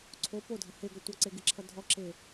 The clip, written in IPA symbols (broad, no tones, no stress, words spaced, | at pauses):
ǀʰo podʱʌ heɡʌ tʷʌǀeɡɪǁʰʌ dʱɔǁe